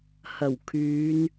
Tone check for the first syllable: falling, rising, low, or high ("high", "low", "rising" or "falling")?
low